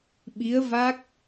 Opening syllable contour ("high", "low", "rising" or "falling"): rising